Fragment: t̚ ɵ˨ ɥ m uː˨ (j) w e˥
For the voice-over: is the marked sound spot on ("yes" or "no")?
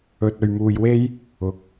yes